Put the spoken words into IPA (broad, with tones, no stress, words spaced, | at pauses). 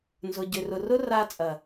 nzʊ˨ɟʏ˨rʊ˨ rʊ˦ra˧ t͡sʼɐ˨